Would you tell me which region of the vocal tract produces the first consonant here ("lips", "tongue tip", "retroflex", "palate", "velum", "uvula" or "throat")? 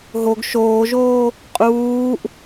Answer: throat